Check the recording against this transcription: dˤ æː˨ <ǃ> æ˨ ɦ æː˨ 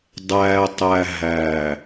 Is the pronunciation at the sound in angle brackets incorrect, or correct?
incorrect